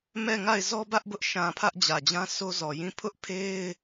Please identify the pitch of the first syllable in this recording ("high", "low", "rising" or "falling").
falling